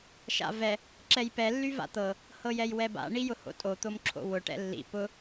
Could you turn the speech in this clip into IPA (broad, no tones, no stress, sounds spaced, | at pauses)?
ʃ a̰ v ɛ | ǁ ɛ j p ɛ lː y v a̰ t̪ ɤ | h ɤ j ɛ j w ɛ b a̰ ɳ i j ʊ h o̰ tʼ o t̪ o m ǁʰ o̰ w ʊ ʈ ɛ̰ lː ḭ p ʊ